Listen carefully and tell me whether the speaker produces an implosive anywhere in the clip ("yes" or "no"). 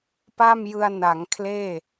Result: no